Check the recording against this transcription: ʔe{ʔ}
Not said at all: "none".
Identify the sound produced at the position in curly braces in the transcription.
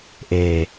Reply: none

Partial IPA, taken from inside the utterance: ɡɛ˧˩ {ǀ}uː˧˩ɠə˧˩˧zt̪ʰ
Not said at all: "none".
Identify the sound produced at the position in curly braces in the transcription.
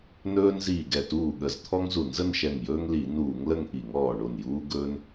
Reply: t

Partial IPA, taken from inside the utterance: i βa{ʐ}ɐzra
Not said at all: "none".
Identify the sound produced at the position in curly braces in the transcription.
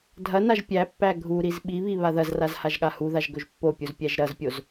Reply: ð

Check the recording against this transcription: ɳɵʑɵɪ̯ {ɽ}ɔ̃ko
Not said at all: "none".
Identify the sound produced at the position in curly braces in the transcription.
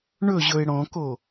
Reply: ɽ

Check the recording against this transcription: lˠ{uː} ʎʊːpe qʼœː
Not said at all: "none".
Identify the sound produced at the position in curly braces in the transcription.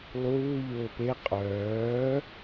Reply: uː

